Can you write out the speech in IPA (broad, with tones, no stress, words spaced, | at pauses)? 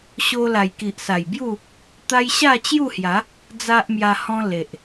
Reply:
ɕo˧ la˨˩jki˨ʔsa˨˩jbju˥˧ | t̪a˦j ɕa˥˧t͡ɕju˥˧hja˨˦ | d͡za˦ʔmja˧hɔ̃˦ le˨ʔ